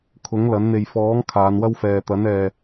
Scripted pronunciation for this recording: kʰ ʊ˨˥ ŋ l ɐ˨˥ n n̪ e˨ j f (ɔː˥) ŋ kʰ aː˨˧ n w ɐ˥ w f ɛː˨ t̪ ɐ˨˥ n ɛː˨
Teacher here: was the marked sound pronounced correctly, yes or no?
no